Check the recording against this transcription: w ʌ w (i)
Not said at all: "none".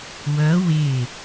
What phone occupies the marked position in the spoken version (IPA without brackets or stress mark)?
ɪ